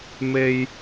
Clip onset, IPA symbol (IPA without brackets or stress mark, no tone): m